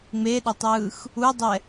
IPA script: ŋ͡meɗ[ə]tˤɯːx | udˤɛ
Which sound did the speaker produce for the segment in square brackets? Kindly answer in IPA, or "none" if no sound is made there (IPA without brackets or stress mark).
ʌ